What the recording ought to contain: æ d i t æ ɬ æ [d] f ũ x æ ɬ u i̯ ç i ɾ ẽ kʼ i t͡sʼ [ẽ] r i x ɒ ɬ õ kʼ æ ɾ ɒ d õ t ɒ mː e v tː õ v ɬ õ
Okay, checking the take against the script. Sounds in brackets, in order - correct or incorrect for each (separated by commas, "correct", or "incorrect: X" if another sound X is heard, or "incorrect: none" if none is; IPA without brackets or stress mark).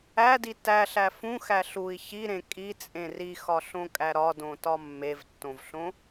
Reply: incorrect: none, correct